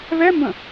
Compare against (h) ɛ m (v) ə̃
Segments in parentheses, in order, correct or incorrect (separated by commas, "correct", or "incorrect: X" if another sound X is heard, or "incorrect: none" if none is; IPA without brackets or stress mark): incorrect: β, incorrect: b